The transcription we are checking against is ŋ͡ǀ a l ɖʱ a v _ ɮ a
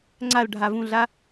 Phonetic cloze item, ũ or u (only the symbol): ũ